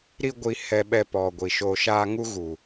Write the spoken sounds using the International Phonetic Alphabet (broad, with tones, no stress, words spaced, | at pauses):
ɾi˦ɡʷi˧hɛ˧ɓɛ˧ pɔ˨ ɡʷi˨ʃoː˧ʃaː˦ ŋu˦ɣu˨